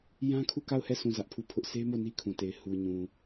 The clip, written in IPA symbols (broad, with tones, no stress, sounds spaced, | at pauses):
j ã˦ kʰ u˦˨ k a˦˨ ʊ̯ h ɛ˦˨ s ũ˦˨ z ä˦ ʔ pʰ u˦˨ pʰ ʊ˦ ʔ sʰ e˦ m o˦˨ n i˦ kʰ ũ˨ t e˨ ɪ̯ h u˨ ɲ ũ˨